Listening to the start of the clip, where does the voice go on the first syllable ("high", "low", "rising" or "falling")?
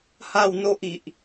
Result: falling